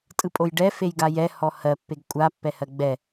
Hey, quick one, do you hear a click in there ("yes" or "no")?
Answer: no